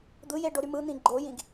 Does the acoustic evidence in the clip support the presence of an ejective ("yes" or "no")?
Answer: no